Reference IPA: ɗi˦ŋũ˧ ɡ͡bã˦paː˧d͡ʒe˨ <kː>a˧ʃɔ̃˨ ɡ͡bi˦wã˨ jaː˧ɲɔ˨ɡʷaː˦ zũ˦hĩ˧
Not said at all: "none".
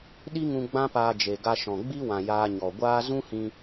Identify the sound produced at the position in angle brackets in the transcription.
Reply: ɡ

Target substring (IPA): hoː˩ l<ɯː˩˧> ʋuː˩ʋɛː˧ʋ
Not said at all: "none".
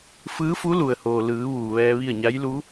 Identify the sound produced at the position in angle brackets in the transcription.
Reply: ɯː˩˧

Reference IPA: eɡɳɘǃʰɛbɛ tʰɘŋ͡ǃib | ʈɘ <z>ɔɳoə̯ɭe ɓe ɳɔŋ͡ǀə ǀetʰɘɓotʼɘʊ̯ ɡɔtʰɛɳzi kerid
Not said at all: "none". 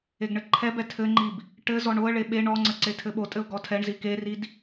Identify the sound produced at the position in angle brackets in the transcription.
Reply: z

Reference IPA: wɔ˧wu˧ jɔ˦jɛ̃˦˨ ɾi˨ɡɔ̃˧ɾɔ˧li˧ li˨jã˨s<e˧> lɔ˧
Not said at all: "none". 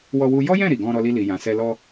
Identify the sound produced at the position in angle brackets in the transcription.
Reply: ɛ˧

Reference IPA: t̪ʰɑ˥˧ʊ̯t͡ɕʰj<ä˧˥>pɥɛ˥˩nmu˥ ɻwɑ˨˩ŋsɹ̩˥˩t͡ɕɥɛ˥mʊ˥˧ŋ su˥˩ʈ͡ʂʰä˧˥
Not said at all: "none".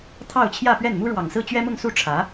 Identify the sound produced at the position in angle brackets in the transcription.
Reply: ä˥˧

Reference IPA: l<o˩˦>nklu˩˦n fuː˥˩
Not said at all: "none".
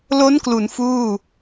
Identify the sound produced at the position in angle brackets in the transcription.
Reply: o˦˥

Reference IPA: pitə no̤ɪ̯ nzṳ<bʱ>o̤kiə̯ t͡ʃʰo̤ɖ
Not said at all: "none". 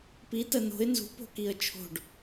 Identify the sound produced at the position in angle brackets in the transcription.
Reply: p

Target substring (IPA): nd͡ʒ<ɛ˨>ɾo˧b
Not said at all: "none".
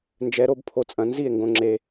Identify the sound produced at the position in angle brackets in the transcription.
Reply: ɛ˨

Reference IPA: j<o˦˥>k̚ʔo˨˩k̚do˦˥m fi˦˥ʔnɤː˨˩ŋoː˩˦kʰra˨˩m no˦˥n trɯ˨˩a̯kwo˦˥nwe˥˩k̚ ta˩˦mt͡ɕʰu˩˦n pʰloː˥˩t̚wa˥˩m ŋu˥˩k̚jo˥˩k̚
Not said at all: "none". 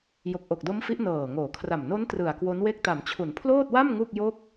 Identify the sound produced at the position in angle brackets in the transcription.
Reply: o˨˩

